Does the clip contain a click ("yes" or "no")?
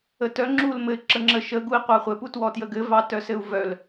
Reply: yes